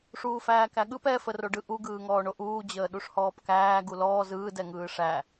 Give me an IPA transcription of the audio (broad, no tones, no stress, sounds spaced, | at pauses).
ʂ uː f æː k æ ɠ ɯ p ɛ f ə r o ɖ ɯ ʔ u ɡ ɯː ŋ ɔː ɳ o ʔ uː d͡ʑ əː ɗ u ʂ h ɔː p k æː ɡ u l ɔː z ɯː d ɛ ŋ ɯː ʂ æ